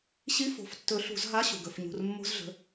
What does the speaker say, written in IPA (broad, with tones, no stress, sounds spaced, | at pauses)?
ɕ i˧˥˧ f o̤˩˧˩ f tː ɵ˨˩˦ ɬ ṳ˨˩˦ z ɦ a˧˥˧ ɕ ṳ˩ ɡ ɵ˩˧˩ f ɲ ṳ˩˧˩ r mː o̤˧˥˧ z ɮ ə̤˩˧˩